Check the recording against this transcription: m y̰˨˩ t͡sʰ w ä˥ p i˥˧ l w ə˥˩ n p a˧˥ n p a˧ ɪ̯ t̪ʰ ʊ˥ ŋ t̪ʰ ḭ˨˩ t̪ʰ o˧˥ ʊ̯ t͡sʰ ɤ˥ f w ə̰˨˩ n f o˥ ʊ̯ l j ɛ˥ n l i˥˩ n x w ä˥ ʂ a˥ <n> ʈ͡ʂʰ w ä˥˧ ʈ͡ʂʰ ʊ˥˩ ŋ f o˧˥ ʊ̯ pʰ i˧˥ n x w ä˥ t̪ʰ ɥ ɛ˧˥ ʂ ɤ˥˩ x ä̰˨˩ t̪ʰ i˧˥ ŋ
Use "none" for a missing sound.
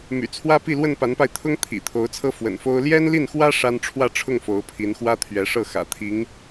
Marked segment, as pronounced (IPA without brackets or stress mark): n